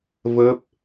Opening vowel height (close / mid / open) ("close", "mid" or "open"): mid